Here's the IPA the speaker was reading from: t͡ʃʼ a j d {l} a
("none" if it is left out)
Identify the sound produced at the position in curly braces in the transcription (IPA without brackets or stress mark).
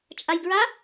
ɹ